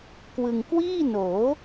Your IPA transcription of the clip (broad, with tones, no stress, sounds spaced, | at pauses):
k w ɯ˧ ŋ k w iː˥˩ n oː˩˦